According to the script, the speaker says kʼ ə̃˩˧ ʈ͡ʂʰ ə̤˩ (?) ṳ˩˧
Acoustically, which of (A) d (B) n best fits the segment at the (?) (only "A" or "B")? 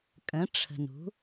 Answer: B